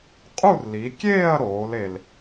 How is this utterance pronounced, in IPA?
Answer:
qʼu˥˧rli˩˧kʲeː˥˧ɐ̯ ɾoː˩˧le˨˩l

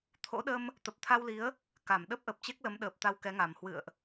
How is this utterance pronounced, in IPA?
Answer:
t̪ʰo̰˧˥ɗə˧m | t̪ə˨˩p̚t̪ʰa˧wli˨˦ə̯ | ka˧˩mɗə˦˥p̚ʔə˨˩p̚ t͡ɕe˦˥k̚lə˨˦mɗəː˨˩p̚ t̪a˧wkɛ˨˦ŋa˨˩m hwɨ̰˧˨ə̯ʔ

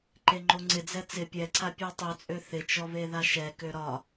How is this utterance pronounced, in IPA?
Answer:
ǃeŋ͡ǃoŋ͡ǀɪd͡zɛ t͡sɪ pʲɛǀʰa pʲøtˤøt͡sʼø θɪt͡ʃɔβeða ʃɛkø ɾɒ

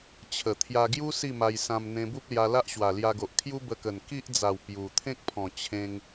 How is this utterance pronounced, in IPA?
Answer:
t͡ɕʰə˨˩ t̪ʰja˧ɡju˦ si˥˧ma˧j sã˧m n̪ẽ˧bu˦p̚lja˧ la˦ʔɕwa˨˩lja˧ɡo˨ʔ kʰju˦bə˧kə˨˩n ki˦ʔd͡za˨˩w pju˨˩ t̪ʰẽ˦k̚pʰɔ̃˨˩ t͡ɕʰẽ˧ŋ

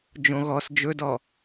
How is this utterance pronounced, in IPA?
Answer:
d͡ʒõɣɔs d͡ʒɵdɔ

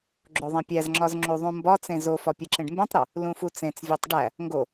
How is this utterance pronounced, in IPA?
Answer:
ɡ͡ǁoðˤẽpʲæzŋ͡ǁɒz ŋ͡ǁuðˤũmbɒt͡sẽ zofɒ pʲeǁẽɖmbẽtˤɾo | lũfut͡sẽt͡svʲɒtˤ ɖæ | ŋɡo

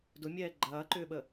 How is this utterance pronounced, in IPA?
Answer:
dʊmʲɛː ɡ͡ǃɐːǃʏːɓə

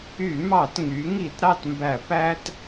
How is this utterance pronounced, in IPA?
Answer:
y˧˩˧mɑ˧˩˧tŋy˩˧ ŋi˧˩˧tɾɑ˦˨tmbæ˧˩˧ pæ˦t

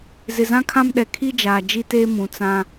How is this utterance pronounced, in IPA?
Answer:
zɪ˨zã˦kʰã˦mɗɛ˨ kʰi˦d͡ʒaː˨ d͡ʒi˦teː˦ mũ˨t͡sã˦

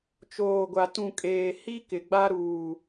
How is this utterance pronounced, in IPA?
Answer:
t͡ʃoː˨ɡʷa˨ tũ˨ kʼeː˨hi˦kɪ˨ ɡ͡ba˦ ɾuː˨

